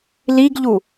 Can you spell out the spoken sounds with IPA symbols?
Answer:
liɡʎu

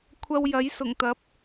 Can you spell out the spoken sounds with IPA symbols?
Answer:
kʷʰɐ˧w jɐ˨˥jsʊ˨˩ŋt̪ɐ˨˥p̚

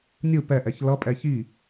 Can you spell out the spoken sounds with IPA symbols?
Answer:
nʲɯ pɛʔɛç lʌpʼɛ çi

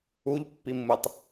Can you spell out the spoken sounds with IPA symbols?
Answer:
uʎpːimːɯtˤ

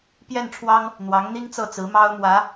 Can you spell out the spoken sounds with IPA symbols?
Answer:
pjɛ˥˩nʈ͡ʂʰwɑ˥ŋ | n̪wɑ˧˥ŋn̪i˥ŋt͡sɤ˥˩t͡sɹ̩˧˥ mɑ˥ʊ̯mwä˧˥

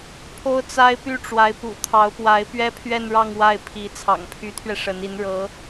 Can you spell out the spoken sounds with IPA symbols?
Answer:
pʰo˥ʊ̯t͡sa˥ɪ̯ py˥˩ʈ͡ʂwa˧˥ɪ̯ pṵ˨˩t̪ʰɑ˧˥ʊ̯pwa˧˥ɪ̯ pɥɛ˥pʰɥɛ˥˧nɻɑ˥˧ŋ wa˥˩ɪ̯pʰi˧˥ t͡sʰɑ̰˨˩ŋpʰy˧˥t̪ʰɥɛ˧ ʂə˧˥ni˧˥n ɻɤ˧˥

